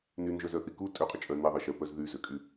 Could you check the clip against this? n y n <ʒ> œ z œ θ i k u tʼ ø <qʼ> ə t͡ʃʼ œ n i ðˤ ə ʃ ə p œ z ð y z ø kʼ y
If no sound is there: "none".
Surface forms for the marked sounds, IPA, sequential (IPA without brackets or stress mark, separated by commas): ʒ, qʼ